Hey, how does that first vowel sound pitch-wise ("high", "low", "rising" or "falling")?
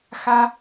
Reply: high